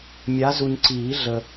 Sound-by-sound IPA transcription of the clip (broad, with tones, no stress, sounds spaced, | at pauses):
mʲ a˨˦ z u˨ ɲ ǀ iː˨˩˦ ɮ ə˨